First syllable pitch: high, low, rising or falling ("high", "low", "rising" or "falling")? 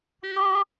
high